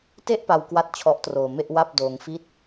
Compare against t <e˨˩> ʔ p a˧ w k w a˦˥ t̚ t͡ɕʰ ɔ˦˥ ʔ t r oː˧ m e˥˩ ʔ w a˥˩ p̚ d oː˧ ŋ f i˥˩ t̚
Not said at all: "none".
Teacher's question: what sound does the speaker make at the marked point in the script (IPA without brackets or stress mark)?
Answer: e˥˩